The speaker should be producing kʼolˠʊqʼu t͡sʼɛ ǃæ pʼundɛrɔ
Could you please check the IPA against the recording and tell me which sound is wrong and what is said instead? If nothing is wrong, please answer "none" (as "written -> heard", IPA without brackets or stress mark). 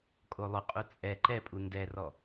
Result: æ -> ɛ